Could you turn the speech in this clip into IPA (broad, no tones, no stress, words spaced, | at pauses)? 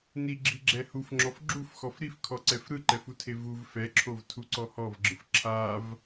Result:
niɡ͡ǁiɡ͡ǁɛ hufŋ͡ǁɔf ɡ͡ǁufxɔf ɾifkʰɔǀɛf ɾɯǃɛfutʰe vuv fɛǁʰov tʰuǀɔhɔvɡ͡ǁɯf ǁʰav